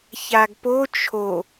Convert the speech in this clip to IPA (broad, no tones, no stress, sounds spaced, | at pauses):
ç a ɡ p o t͡ʃʰ o